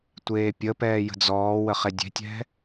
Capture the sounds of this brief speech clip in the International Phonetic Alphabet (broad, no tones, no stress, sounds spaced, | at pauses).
tʷ eː pʲ ə p ɛː j ə̤ d͡z ɔː w ə χ e dʲ e̤ tʲ ɛ̤